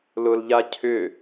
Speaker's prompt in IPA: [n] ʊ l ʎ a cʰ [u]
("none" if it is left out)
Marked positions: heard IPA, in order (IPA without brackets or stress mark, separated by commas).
l, ʏ